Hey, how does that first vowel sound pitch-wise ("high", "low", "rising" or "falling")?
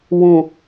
low